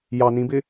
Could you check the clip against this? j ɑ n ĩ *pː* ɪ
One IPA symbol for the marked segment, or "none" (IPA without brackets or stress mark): b